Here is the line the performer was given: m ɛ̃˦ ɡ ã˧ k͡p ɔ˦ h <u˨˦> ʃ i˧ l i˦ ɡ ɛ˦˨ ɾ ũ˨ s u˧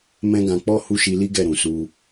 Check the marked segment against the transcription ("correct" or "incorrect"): incorrect